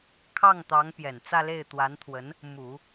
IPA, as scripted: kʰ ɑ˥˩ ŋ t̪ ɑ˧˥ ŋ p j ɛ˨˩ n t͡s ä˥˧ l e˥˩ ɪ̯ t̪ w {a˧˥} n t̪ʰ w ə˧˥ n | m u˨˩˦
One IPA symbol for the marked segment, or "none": a˧˥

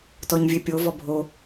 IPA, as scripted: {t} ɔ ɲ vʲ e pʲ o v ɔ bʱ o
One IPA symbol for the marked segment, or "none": t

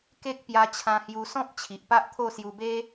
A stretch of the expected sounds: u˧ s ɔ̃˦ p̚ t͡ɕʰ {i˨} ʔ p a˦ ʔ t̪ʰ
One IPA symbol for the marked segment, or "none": i˨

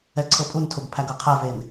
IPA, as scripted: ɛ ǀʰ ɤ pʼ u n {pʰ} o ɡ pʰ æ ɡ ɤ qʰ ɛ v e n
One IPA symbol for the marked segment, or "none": tʰ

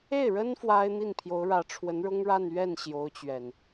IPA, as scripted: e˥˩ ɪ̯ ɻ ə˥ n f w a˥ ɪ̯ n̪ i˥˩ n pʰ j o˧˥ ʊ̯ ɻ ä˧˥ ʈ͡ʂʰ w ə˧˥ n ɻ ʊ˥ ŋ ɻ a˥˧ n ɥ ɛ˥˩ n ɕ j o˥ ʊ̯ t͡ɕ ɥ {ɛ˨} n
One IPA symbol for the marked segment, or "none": ɛ˨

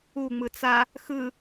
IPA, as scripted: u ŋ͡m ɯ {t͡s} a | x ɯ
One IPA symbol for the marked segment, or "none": t͡s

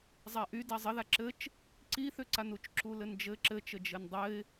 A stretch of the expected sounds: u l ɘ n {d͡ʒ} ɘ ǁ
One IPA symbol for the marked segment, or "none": d͡ʒ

